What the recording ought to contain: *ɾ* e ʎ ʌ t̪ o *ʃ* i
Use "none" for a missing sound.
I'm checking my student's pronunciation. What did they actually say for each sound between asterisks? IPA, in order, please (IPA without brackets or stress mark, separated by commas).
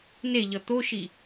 n, ʃ